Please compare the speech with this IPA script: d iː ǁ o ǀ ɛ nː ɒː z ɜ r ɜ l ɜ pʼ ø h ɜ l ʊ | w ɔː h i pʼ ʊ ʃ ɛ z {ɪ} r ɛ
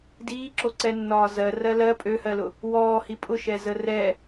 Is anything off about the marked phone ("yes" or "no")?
yes